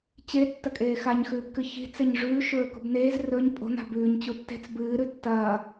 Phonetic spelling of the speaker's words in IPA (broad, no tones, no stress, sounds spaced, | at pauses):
t͡ɕ e tː ɐ kʼ eː x a ɲ x ʉː b k ɨ ç i̤ t͡s e ɲ ʐ ʉː ʃ ɵː k ṳ b n eː z r ɵ ɲ pʼ o̤ n a̤ b ʉː ɲ t͡ɕ u tː e̤ t͡s b ɨː ɾ ʉ tː ɐː